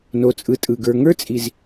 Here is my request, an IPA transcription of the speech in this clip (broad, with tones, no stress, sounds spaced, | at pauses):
n o˨ t͡sʼ ɯ˨ tʼ ɯ˨ ɡ ə˞˨ ŋ ə˞˦ t͡sʼ i˨ z